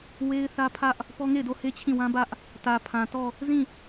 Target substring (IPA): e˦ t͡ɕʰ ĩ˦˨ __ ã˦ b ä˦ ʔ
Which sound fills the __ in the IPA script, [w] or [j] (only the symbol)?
w